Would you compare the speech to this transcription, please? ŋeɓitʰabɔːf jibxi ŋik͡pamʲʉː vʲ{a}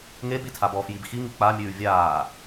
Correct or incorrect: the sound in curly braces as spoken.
incorrect: aː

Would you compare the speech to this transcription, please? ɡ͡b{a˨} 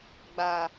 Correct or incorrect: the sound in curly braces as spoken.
correct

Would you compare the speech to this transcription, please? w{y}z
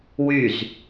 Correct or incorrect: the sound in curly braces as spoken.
correct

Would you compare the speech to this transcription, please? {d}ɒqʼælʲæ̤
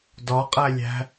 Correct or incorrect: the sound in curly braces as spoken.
correct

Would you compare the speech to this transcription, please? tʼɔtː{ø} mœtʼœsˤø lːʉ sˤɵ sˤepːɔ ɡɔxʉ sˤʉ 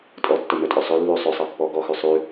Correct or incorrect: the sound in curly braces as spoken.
incorrect: ɵ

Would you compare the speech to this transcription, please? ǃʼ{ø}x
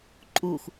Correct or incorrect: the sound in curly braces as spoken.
incorrect: u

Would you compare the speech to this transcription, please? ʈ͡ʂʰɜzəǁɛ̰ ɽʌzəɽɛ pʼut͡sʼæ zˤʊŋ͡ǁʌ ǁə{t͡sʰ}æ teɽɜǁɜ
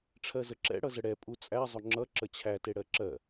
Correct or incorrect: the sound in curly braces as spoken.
incorrect: t͡ɕʰ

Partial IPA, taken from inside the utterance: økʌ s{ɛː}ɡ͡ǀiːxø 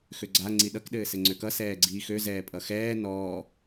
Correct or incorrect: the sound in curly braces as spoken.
correct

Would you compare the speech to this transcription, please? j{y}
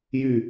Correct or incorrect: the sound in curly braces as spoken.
correct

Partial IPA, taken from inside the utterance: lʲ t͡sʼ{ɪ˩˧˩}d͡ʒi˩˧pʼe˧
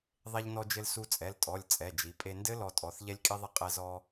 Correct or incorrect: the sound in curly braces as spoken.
incorrect: ɛ˩˧˩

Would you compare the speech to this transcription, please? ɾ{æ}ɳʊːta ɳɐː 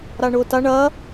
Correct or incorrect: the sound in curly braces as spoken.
incorrect: a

